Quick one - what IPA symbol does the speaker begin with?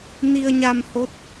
n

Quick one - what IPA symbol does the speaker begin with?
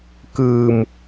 k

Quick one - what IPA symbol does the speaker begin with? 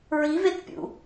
ɹ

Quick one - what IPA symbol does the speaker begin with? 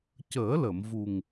c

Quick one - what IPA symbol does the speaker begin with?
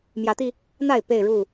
m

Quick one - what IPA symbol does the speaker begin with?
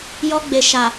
j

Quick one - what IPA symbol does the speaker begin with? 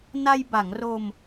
n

